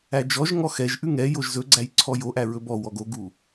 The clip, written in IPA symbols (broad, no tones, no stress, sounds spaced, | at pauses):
æ d͡ʒ ɔ ʒ ŋ ɔ x ɛ ʒ ʔ ʉ ŋ ɛ j o ʒ z ɵ ɡ͡ǀ æ j ǀʰ ɔ j o ʔ æ ɹ ɵ b ɔ w ɔ ɡ o ɡ u